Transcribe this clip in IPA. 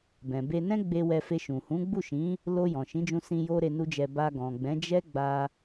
b ɛ̃˨ b e˧ n ɛ̃˦ ɡ͡b e˧ w ɛ˧ f e˧ ʃ ũ˨ h ũ˨˦ ɡ͡b u˦˨ ʃ ĩ˨˦ | l o˧ j ɔ̃˨ ʃ ĩ˨˦ d͡ʒ ũ˧ s ĩ˧ j o˦ ɾ e˧ n u˦ d͡ʒ ɛ˧ b a˧ ɡ ɔ̃˨ ɡ͡b ɛ̃˨˦ d͡ʒ ɛ˦ ɡ͡b a˧

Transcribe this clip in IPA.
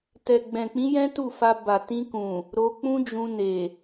t ɛ˨ ɡ͡b ɛ̃˨ k͡p ĩ˨˦ j ɛ̃˦ t u˦˨ f a˧ b a˨ t ĩ˧ k ũ˨ | ɾ o˧ k͡p ũ˦ d͡ʒ ũ˧ n e˨

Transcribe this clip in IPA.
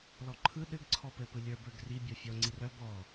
l ɔ ǃʰ ɯ ɗ ɘ ɡ ǀʰ ɔ p ɘ p ɯ lʲ ə˞ b ə˞ ɡ r i bʲ ɔ fʲ ɔ ŋ͡ǀ i r œ b ɔ

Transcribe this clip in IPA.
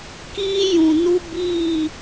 k iː˦ j ũ˨ n u˦ b iː˦˨

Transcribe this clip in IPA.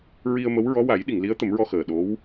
ɹ i˧ ə̯ m ə˧˥ w ɹ ɔ˧˥ w a˨˩˦ j ɗ i˨˩˨ ŋ l i˧˥ ə̯ t̪ ə˨˩˦ m ɹ ɔ˧ x əː˨˩ ɗ o˧˥ w

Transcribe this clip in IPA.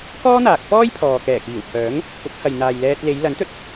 k ɔː˥ n̪ aː˨ k̚ f ɔː˥ j pʰ ɔː˨ k ɛː˨˩ k iː˨˩ w pʰ œː˨˥ ŋ | p ʊ˨˥ k̚ h ɐ˨ j n̪ aː˨ j l ɛː˧ t̚ l e˨˧ j l ɐ˨˥ n t̪ ɵ˧ t̚

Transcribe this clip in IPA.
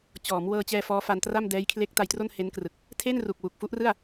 t͡ɕ ɔː˩˦ m w ɤː˧ t͡ɕ ɛː˧ f ɔː˦˥ f a˧ n t r a˥˩ m d ɛː˦˥ j kʰ l e˦˥ k̚ t a˧ j t r o˥˩ n h e˦˥ n k r ɯ˨˩ k̚ | tʰ eː˥˩ n r u˨˩ k̚ w u˨˩ k̚ f u˦˥ ʔ r ɯ˥˩ a̯

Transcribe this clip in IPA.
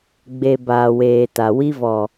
ɡ͡b e˨ b aː˨ w eː˨ t a˨ w i˦ v ɔ˨

